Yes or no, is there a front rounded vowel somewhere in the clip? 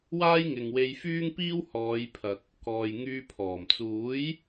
yes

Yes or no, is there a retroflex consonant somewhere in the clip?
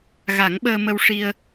yes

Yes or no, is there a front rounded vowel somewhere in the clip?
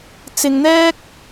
no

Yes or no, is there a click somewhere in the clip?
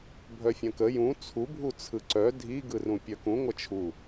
yes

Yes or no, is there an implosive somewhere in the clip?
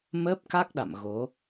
yes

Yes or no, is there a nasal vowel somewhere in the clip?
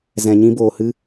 yes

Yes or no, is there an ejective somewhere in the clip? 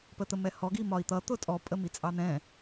yes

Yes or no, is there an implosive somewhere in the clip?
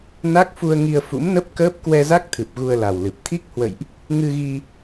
no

